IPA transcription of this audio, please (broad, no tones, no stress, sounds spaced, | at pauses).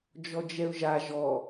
d͡ʒ ɔ d͡ʒ ɛ ʊ̯ ʒ a ʒ ɔ